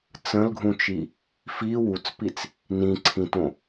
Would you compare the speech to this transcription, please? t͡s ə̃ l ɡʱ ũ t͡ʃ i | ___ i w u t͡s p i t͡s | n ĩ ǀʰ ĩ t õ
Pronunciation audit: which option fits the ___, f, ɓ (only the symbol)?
f